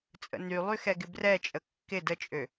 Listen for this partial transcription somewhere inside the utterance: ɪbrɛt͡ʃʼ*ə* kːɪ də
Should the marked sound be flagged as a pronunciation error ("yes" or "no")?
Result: no